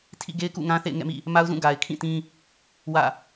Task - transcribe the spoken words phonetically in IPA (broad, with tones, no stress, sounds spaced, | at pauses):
tʰ ḭ˦˨ ɡ e˦ ɪ̯ k ṵ˦˨ ŋ ã˦ θ ḛ˦˨ ɪ̯ ŋ ɛ̰˦˨ m ḭ˦˨ | m a˦ ʊ̯ z ũ˦˨ ɡ a˨ ɪ̯ kʰ ĩ˦˨ t ĩ˦ | w ä̰˦˨